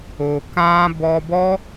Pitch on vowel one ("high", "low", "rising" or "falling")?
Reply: low